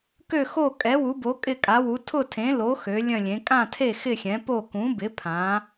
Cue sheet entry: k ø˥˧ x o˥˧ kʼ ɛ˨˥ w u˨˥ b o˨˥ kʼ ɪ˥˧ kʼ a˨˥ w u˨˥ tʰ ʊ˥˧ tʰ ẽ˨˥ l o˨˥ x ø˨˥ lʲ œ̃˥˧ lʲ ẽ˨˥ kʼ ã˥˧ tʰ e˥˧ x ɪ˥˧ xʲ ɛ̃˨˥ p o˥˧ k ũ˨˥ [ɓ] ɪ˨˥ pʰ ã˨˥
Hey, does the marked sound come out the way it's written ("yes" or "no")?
no